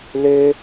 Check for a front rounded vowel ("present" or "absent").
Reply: present